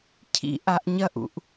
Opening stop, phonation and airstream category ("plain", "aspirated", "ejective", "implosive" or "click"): aspirated